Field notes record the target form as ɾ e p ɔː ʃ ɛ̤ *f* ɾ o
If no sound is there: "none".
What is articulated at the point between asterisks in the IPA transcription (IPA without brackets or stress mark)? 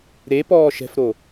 f